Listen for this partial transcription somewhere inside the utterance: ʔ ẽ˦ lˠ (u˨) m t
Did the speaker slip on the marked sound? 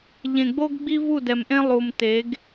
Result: no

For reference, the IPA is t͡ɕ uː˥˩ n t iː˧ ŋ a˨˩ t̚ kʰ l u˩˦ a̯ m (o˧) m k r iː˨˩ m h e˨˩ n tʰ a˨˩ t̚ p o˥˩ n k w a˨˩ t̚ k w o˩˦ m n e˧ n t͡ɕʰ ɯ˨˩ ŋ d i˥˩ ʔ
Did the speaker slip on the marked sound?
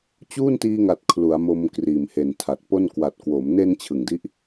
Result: no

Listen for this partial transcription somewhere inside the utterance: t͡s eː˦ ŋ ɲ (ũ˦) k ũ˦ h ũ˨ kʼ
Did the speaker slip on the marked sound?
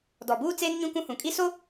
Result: no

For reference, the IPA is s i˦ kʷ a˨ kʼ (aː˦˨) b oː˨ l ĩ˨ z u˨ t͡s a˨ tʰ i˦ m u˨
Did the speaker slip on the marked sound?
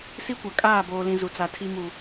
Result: no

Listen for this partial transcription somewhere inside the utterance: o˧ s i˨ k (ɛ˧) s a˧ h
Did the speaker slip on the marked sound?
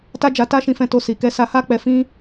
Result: no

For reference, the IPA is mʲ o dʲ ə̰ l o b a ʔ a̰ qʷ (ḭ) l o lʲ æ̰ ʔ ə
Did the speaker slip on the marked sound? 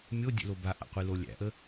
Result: yes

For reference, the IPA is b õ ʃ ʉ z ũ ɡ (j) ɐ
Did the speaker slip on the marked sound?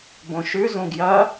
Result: no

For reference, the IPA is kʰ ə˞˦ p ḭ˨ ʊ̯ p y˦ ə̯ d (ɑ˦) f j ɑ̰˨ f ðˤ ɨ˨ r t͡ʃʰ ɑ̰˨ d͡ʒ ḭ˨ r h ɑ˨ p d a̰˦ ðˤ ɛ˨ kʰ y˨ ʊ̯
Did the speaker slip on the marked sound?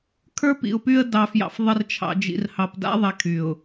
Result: yes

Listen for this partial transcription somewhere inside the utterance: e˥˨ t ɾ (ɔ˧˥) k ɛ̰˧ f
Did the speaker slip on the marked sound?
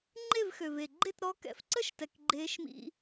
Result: no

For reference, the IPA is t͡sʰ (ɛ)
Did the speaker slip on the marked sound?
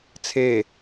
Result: yes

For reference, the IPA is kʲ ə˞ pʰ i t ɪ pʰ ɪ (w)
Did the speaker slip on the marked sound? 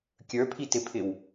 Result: no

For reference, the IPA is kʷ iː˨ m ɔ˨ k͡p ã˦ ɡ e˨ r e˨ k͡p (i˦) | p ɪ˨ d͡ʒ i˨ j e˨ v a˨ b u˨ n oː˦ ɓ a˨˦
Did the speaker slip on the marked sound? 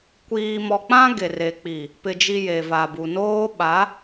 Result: yes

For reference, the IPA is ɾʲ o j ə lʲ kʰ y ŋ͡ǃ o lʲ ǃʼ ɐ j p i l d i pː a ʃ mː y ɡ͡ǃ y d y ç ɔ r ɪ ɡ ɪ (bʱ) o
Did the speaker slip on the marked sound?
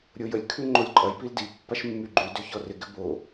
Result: yes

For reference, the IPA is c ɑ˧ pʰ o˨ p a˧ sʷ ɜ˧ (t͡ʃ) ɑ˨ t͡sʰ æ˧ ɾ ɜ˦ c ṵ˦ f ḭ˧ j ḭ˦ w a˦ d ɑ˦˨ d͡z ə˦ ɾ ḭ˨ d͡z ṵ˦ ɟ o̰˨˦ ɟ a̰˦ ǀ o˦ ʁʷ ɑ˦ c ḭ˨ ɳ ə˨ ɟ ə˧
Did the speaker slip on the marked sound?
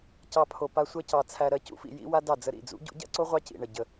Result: yes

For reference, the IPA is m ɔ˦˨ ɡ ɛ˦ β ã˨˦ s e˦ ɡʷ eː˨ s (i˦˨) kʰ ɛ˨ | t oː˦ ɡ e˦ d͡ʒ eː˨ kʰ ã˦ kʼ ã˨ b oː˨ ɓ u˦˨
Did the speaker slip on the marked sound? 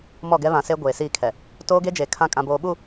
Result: no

